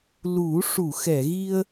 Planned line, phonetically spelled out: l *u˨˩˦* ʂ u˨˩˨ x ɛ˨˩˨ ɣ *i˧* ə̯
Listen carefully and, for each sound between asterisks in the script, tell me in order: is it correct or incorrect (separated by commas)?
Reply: correct, correct